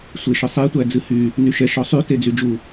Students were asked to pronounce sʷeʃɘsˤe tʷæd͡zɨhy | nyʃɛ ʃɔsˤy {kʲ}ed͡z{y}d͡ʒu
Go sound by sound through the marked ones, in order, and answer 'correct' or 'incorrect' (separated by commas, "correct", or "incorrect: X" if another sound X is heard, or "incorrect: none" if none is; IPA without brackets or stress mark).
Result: incorrect: t, correct